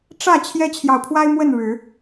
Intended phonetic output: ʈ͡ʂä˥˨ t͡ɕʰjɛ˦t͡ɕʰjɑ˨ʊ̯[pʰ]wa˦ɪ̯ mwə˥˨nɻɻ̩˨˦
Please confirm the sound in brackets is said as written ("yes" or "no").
yes